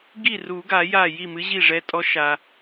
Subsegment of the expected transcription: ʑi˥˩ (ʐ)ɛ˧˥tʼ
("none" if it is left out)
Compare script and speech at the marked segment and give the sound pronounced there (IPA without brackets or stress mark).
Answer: ʐ